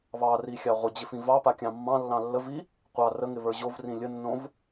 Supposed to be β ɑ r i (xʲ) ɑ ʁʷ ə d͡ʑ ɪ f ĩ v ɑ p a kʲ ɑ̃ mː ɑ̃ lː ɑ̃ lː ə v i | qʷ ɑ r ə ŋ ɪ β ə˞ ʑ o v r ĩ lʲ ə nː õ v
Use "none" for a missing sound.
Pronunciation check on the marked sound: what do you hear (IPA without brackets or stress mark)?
xʲ